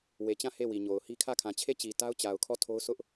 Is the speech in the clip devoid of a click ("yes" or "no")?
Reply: yes